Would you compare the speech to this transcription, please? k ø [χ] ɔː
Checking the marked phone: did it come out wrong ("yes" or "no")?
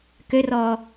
yes